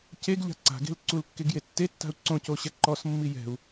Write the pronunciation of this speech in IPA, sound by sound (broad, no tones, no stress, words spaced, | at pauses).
ceɡʎa̤ ǀa̤ɡe̤l ǀulkːeɡje tːetːa̤u̯ ǀõcoɕɛ ǃɔsmːi jɛ̤u̯